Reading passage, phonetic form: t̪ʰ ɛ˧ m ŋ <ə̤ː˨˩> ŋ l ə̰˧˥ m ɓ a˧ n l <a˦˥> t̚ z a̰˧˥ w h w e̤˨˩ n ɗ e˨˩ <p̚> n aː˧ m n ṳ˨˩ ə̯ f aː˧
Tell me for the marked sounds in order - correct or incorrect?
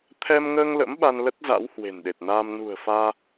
incorrect: əː˧, incorrect: ə˦˥, incorrect: t̚

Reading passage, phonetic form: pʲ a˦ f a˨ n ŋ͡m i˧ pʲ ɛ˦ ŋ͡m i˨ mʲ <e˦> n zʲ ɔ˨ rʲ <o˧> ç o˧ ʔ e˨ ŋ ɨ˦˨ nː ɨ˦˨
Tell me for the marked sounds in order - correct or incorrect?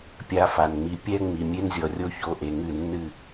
correct, incorrect: o˦

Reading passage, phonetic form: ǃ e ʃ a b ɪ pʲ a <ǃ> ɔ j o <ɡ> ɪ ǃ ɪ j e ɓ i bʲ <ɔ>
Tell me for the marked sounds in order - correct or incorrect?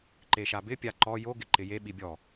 correct, correct, correct

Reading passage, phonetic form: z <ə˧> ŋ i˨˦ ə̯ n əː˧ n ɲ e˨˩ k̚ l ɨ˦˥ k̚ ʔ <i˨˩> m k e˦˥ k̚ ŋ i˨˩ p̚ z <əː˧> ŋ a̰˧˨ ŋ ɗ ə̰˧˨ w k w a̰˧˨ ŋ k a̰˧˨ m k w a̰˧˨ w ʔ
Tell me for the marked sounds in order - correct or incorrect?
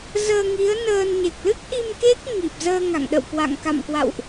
incorrect: əː˧, incorrect: i˧, correct

